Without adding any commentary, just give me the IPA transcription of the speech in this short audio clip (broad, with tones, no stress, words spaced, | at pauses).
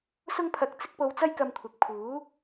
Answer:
sʊ˥ŋpʰɐ˧k̚t͡sɪ˥k̚ po˧wt͡sɐ˥j kɐ˧mkʷʰɪ˨k̚pʰuː˨˥